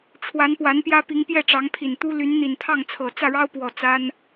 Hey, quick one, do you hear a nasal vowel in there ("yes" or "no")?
no